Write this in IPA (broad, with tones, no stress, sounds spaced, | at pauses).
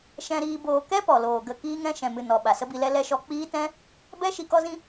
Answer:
ʃ ɛ̃˧ ɾ iː˧ b oː˨ k ɛ˦ p ɔ˨ l oː˨ ɡ ə˦˨ k iː˧ ŋ ɛ̃˧ ʃ ɛ̃˨ m ɨ˨ n ɔ˨ ɓ a˨ s ə˦ b i˧ l ɛ˦ l ɛ˦ ʃ ɔ˦ k͡p iː˦ t ɛ̃˦ | b ɛ˦ ʃ i˨ k ɔ˧ z ĩ˧